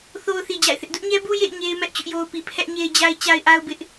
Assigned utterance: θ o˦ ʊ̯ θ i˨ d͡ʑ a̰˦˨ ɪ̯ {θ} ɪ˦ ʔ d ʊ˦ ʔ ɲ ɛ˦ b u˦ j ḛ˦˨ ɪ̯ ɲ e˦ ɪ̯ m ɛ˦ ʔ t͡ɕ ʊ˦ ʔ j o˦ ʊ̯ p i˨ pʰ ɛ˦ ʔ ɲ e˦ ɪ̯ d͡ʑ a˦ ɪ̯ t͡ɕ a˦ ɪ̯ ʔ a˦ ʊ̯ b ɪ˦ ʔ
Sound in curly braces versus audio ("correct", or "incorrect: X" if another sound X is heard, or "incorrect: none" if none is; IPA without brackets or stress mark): correct